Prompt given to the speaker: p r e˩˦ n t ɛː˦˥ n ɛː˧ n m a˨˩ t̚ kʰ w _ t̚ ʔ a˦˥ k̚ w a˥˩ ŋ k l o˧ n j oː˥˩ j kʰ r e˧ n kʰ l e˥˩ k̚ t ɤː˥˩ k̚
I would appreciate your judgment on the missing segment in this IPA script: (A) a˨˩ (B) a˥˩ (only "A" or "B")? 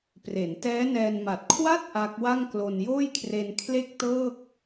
B